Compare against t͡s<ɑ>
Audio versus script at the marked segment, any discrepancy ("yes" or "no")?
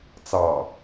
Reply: no